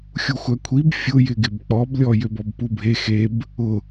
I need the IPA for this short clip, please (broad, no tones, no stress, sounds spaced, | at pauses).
xʲ u xʷ æ kʷʰ i b fʲ ʊ j ɪ ɡ ɪ b k͡p ɔ b lʲ ɔ j ø b ɔ b p u bʱ e x e b | ʊ